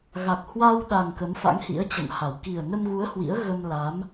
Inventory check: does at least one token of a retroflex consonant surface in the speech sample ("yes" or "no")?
no